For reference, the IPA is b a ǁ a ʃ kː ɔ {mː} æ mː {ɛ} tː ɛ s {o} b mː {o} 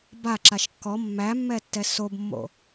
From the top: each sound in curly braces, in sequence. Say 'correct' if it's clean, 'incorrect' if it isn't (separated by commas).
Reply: correct, correct, correct, incorrect